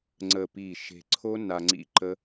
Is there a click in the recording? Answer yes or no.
yes